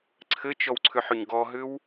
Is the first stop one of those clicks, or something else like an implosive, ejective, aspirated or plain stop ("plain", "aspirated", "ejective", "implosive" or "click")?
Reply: click